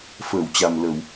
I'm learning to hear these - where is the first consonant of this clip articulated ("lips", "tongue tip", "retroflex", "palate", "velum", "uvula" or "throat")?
lips